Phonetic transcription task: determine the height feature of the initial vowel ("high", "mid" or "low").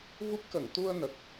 high